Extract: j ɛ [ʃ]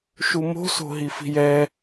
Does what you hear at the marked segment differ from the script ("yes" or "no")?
yes